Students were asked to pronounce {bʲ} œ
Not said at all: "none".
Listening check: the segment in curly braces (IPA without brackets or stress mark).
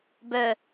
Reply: b